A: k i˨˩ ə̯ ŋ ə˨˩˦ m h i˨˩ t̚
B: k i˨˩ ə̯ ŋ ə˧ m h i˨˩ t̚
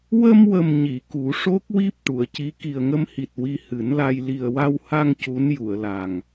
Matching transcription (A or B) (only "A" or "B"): B